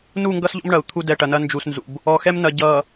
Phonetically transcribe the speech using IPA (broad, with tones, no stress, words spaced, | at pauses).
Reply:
nu˦˨ŋɡʌ˦sʎɔ̰˦m ɳɐ˨u̯t̪ʰu˦ dɛ˨ʈɐ˨nɐ˦ nd͡ʒu˦snzṵ˦b | ɔ˨xɛ˦mnɐ˨ ɟʌ˨